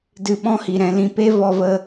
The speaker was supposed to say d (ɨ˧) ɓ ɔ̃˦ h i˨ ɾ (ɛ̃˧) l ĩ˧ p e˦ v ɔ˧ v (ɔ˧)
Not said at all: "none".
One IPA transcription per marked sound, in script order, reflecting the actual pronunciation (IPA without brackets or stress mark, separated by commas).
ɨ˧, ɛ̃˧, ə˧